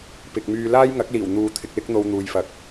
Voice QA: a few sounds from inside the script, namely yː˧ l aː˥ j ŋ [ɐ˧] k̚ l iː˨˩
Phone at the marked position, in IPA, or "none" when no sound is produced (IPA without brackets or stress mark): ɐ˨˥